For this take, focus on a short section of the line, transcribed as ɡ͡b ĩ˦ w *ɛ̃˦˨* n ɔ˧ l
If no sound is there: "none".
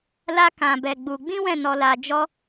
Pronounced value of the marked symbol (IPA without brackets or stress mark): ɛ̃˦˨